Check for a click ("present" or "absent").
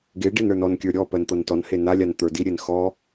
absent